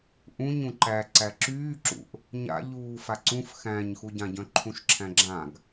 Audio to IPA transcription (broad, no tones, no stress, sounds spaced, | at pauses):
ʔ ũ ɲ ũ ǃ æ ǀ æ ǁ yː ǁ ṵ ʔ | ɲ a̰ ʎ uː f a ǀ ũ f x æ̃ ɲ x u ɟ ã ɟ œ̃ ǃʰ ũ ʃ ǁʰ æ̃ ɡ͡ǁ ã ɡ